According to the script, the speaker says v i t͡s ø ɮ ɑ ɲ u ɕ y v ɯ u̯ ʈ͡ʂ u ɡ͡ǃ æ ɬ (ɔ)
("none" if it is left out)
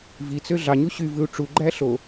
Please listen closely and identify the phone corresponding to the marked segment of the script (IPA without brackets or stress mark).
o